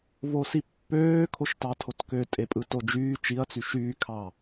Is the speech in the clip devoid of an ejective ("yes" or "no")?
no